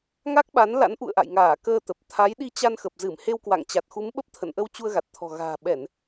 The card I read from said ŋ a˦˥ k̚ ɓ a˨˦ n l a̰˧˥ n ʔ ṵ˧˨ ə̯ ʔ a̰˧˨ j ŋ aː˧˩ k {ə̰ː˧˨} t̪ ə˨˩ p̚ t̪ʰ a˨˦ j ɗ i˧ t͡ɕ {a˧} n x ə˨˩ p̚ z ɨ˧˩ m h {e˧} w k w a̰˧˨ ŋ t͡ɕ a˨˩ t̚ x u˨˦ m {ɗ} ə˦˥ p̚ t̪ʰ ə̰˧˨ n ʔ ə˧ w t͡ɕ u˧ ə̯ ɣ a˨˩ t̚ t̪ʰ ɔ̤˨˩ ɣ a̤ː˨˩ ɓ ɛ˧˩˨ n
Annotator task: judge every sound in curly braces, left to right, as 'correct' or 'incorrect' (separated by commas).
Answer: incorrect, correct, correct, incorrect